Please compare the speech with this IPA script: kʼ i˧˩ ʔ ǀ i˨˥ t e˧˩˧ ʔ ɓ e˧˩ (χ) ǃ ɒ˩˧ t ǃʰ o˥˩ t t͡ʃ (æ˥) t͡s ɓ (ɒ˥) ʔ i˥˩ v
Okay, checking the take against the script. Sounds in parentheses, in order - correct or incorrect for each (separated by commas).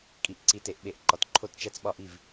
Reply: incorrect, correct, incorrect